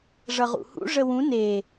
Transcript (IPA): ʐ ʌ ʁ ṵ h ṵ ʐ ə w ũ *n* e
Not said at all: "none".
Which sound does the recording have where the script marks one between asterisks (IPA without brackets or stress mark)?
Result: n